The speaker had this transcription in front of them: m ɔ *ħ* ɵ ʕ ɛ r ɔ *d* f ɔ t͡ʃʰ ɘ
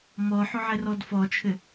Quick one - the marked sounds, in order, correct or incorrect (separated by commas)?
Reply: correct, correct